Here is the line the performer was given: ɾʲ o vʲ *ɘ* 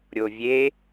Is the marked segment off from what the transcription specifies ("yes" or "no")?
yes